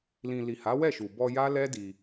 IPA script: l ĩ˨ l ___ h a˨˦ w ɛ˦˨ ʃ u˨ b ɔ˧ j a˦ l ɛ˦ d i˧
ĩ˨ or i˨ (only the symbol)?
i˨